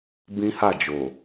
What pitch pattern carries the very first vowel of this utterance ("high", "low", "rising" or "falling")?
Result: high